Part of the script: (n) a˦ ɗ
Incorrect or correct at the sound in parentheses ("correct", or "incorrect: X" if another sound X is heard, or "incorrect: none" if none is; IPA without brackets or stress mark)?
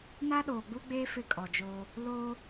correct